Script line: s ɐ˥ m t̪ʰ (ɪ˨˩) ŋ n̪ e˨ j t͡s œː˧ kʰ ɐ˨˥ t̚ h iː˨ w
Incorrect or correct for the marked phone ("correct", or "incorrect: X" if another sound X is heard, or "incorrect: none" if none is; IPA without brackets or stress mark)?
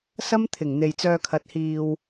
correct